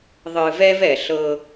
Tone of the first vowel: low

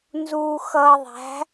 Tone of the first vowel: low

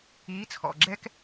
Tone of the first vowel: rising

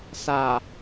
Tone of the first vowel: low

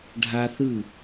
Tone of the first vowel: high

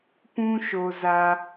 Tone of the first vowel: high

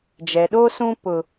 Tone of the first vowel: low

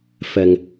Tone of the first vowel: low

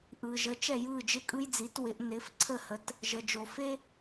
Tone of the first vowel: low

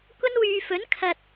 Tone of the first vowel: high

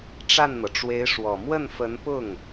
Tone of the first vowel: falling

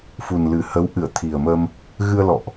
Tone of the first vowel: low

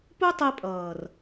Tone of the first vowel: high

